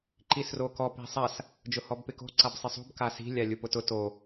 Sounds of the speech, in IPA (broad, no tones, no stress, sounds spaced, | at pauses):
ǃ i s r o k ɔ p i̤ sˤ a s | d͡ʒ ʊ h ɔ b p ɪ k o̤ ǀ a b sˤ ɪ sˤ ṳ b k a s i̤ lʲ a lʲ u p ʊ t ʊ t o